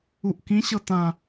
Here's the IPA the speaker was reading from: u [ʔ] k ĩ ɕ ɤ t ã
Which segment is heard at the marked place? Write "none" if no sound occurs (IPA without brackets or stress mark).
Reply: ʔ